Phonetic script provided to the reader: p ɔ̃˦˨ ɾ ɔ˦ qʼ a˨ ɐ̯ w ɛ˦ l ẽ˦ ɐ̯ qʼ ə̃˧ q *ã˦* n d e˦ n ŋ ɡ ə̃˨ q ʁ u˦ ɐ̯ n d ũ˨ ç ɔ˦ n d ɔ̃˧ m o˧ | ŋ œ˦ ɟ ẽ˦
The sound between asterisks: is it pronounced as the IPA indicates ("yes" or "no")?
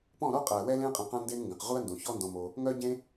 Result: yes